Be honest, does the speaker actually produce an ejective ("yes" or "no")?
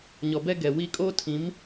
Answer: yes